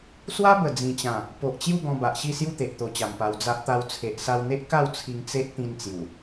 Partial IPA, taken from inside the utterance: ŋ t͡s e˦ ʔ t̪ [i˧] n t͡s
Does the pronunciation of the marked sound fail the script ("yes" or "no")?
yes